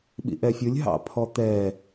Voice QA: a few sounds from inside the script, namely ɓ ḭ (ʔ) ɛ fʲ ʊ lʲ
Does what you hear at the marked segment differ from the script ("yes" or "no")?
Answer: no